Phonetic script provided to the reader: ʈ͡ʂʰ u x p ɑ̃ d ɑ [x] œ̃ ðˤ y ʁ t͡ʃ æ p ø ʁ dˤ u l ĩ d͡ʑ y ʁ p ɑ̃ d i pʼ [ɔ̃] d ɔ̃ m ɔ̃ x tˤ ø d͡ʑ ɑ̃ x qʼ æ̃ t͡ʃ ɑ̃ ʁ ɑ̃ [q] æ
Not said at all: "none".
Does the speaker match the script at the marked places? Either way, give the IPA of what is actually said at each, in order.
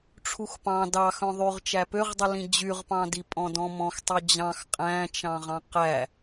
x, ɔ̃, q

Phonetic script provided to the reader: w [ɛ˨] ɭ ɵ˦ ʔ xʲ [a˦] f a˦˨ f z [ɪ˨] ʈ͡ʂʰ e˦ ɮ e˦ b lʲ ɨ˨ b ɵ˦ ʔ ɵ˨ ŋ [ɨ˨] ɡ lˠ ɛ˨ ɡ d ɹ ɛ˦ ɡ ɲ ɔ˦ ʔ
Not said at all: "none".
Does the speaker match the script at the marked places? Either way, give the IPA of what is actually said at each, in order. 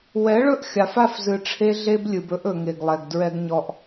ɛ˨˦, a˨, ɨ˨, e˨

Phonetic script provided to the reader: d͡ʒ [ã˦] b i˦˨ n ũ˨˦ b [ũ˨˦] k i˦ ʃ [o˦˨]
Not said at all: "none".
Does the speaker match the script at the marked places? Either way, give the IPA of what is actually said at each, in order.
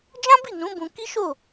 ã˦, ũ˧, o˦˨

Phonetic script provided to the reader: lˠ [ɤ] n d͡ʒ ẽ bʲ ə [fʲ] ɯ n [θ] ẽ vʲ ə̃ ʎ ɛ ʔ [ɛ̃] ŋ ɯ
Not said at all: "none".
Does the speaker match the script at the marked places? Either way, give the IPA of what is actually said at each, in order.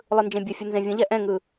ɯ, fʲ, z, ɛ̃

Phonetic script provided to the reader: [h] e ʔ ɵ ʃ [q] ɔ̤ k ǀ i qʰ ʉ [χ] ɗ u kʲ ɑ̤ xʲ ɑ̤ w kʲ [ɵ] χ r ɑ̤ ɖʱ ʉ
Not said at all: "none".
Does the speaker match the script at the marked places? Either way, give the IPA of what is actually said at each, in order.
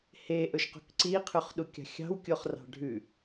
h, q, χ, o

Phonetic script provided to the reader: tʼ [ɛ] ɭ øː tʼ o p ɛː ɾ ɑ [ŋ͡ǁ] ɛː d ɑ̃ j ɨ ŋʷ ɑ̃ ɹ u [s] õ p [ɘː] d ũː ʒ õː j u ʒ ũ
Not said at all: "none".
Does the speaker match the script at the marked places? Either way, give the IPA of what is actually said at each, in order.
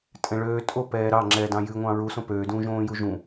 ɛ̃, ŋ͡ǁ, s, øː

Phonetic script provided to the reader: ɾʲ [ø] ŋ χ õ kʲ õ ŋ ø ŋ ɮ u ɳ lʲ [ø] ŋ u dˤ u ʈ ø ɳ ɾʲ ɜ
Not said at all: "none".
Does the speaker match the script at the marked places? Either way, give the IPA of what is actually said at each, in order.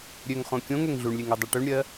ø, e

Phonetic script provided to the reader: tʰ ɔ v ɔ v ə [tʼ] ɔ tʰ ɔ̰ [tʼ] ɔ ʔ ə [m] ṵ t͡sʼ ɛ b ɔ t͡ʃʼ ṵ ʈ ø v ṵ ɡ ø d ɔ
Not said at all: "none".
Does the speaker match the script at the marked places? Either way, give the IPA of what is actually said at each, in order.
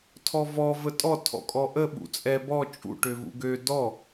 tʼ, kʼ, ɓ

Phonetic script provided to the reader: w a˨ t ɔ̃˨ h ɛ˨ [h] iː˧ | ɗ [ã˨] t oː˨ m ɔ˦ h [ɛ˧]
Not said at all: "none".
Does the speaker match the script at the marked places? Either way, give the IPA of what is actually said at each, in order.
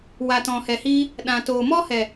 h, ã˨, ɛ˨

